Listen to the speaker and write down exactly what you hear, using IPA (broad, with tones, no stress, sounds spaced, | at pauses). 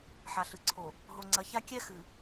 ħ a˨ ɬ ɨ˨ ǀʰ o˨ | ɦ o˨ ŋ͡ǀ ɐ˨˦ ç a˦ kʲ ɛ˦ x ɨ˨